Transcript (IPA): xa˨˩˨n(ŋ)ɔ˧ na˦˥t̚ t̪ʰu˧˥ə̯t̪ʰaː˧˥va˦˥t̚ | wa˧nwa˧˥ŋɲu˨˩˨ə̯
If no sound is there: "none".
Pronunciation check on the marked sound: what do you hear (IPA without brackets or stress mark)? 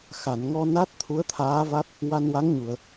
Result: ŋ